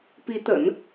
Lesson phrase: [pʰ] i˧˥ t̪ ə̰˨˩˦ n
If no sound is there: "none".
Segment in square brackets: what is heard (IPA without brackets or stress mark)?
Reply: p